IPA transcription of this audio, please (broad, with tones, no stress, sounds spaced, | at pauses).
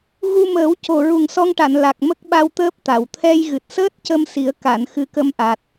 ɣ u˧ m əː˨˩˦ w c o˨˩ ɹ u˨˩ ŋ s ɔ˧ ŋ ʈ a˨˩˨ n l a˨˩ k̚ m ə˦˥ k̚ ɓ a˧ w t̪ əː˦˥ p̚ t̪ a˨˩˨ w t̪ʰ ɛ˧ j ɣ ɨ˨˩ t̚ s əː˦˥ t̚ c ə˧ m s i˨˩˦ ə̯ k a˨˩˨ n x ɨ˧˥ k ə˧˥ m ʔ a˨˩ t̚